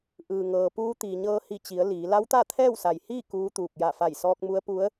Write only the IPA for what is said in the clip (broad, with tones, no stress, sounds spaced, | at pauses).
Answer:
ʔ ɯː˩ ŋ ɤː˩ p uː˧˥ t̪ iː˩ ɲ ɤː˧ h i˧˩ t͡ɕ i˩˧ ə̯ l iː˩˧ l a˧˥ w t̪ a˥˨ t̪ʰ ɛː˥˨ w s a˩ j h iː˥˨ k uː˧˥ t̪ uː˧˩ k̚ j a˧˩ f a˧˩ j s ɔː˧ k̚ m u˧˥ ə̯ p u˧˥ ə̯